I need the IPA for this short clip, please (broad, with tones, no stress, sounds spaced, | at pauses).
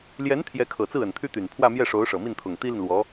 l j ɛ˧˥ n t̪ʰ j ɛ˧˥ kʰ ɤ˨˩ t͡s ɹ̩˥˩ ə˨˩ n t̪ʰ y˥ t̪ y˨˩ n pʰ w ä˥˧ m j ɛ˥˩ ʂ o˧˥ ʊ̯ ʂ ɤ˨˩ m i˥˩ n t̪ʰ ʊ˨˩ ŋ t̪ i˥ l i˨ n l w ɔ˧˥